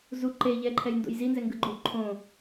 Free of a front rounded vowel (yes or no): yes